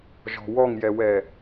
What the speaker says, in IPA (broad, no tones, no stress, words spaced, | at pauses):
ʒɔ̤wɔŋjɛwɛ